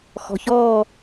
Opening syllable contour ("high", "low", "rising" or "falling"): low